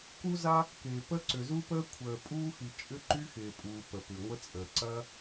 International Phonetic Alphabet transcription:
k u˥ z a˥ | k ɪː˩ p ə˥ ǀ ʏ˩ z u˥ p əː˥ kʷʰ əː˩ pʼ uː˥ x i˩ t͡ʃʼ ʏ˥ ǃ y˥ x ɪː˩ pʼ uː˩ p ə˩ p ʏ˩ ŋʷ ə˥ t͡sʼ əː˩ ǀ ɐ˥

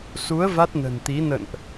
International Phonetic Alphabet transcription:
s u˨˦ ə̯ v a˦˥ t̚ n ə̤˨˩ n t̪ i˨˦ n ə̰˧˨ n ʔ

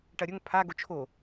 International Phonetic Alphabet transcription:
ʈ ɐ ɾʲ ɵ ŋ pʰ a ɡ o t͡ʃʰ o

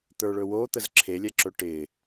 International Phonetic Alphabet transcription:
t̪ ə˞ ɭ ɵ w o t̪ ə z ǁʰ e lʲ ɛ ǁ ɵ ʈ ɪ

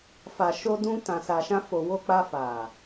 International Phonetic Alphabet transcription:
f a˨ ʃ o˧ d ũ˧ t ã˨ s a˨ ʃ ã˧ f o˨ w o˧ k͡p a˧ f a˨

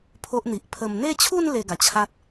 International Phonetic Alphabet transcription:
pʰ o˦ ʔ n̪ i˨ ʔ pʰ ə˨˩ m n̪ e˥˧ t͡ɕʰ u˥˧ n l e˧ ɡ a˨˩ t͡ɕʰ a˦ t̚

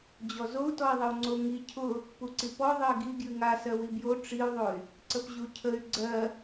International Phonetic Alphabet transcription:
d͡ʑ ɔ z o u̯ t ɔ i̯ ðˤ ə u̯ ŋ͡ǀ o ŋ i cʰ ʊ | p u ǀ i p ɔ ðˤ ɜ ɡ i ɡ j ɨ ŋ a s ɜ w i b j o ʈ͡ʂ i u̯ ðˤ o y̯ | ǀ ə p ʑ u cʰ ə y̯ ɡ͡ǀ ɜ

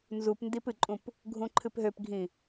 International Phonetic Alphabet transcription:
n z u p n d i p ɨ ǃʼ ũ p | ɡʱ ũ ǃʰ ɨ p ɦ ø p ɡʱ ĩ

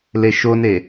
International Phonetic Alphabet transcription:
l e ʃ o n e

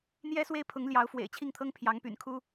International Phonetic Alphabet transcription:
n̪ j ɛ˥ s w e˥ ɪ̯ pʰ ʊ˧˥ ŋ l j ɑ˧˥ ʊ̯ f w ḛ˨˩ ɪ̯ t͡ɕʰ i˥˩ ŋ t̪ʰ ɤ˥ ŋ pʰ j ɑ˧˥ ŋ p y̰˨˩ n kʰ u˥

